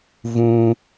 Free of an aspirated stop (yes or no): yes